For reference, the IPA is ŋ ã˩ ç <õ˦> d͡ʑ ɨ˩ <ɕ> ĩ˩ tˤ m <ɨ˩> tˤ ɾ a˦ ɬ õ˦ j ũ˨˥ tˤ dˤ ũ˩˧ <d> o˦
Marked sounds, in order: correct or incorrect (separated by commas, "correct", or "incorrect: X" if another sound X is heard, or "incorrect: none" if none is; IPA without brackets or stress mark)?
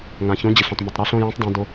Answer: incorrect: õ˨˥, incorrect: ɬ, incorrect: i˩, correct